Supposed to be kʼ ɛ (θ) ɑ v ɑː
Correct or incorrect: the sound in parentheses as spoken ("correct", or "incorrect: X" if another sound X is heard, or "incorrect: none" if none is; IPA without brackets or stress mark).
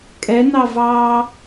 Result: incorrect: n